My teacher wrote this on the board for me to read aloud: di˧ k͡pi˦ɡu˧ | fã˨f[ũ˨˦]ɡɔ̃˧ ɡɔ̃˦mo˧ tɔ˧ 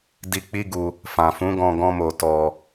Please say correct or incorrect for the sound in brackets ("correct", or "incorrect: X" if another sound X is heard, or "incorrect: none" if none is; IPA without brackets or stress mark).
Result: correct